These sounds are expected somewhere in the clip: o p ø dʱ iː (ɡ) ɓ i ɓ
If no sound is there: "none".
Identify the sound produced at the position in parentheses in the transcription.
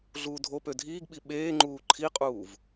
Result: ɡ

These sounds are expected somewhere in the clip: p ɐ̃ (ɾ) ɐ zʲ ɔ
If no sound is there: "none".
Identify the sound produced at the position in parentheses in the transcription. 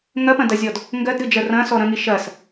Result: d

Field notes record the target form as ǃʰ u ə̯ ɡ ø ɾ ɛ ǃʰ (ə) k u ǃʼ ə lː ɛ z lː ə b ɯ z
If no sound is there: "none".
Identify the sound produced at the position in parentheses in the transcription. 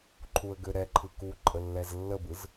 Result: ɯ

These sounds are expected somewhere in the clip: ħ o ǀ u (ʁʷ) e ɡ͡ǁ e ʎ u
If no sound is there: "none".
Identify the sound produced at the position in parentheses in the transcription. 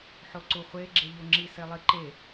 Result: χʷ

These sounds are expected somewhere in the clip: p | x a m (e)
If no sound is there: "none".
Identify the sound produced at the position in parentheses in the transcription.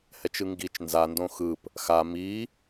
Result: i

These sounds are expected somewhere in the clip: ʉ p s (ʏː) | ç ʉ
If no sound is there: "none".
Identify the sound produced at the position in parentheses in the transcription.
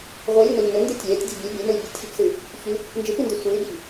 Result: ɨː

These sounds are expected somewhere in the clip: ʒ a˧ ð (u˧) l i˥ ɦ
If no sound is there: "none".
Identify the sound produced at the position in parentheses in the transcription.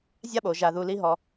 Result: u˧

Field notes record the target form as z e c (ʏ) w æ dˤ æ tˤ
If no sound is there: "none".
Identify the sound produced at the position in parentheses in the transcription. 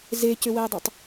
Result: ʏ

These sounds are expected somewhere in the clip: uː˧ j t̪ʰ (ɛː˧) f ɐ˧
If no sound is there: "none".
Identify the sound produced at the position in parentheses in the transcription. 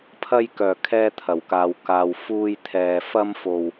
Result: ɛː˨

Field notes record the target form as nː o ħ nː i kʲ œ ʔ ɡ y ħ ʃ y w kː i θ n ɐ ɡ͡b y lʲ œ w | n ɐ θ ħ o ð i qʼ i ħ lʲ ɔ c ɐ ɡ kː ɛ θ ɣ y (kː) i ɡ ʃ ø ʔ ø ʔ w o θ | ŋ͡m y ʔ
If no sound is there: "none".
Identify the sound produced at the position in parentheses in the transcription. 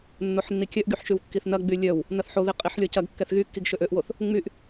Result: kː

